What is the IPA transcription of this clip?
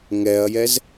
ŋɛɐ̯jɛz

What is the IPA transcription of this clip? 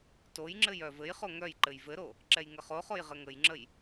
tojŋ͡ǁɘj œvɘjχo ŋœj ǃɘjvɘɾo | ǁɛjŋəχoχoj ʁɘŋəjŋ͡ǁəj

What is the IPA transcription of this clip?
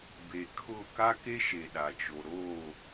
be˨ kʰʊ˦˨ ka˦ke˦ʃe˨ ɗa˨t͡ʃo˨ ɾoː˦˨

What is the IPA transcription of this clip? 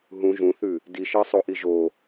ɦũ ʒũθʉ | diʃɜsˤoʔi ʒo

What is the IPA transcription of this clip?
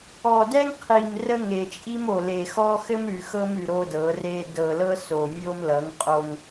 ɔ˨dɛ˦ŋ qʰi˨mrə˦ ŋe˨t͡ʃʼi˦m o˨le˨xɔ˦ xɘ˦mɾʉ˨ xɤ˦mʉ˨ ɾo˦dɤ˨˦re˦ dɤ˨lɤ˦so˨ mʲo˦mlʌ˨˦ŋqʼo˦ŋ

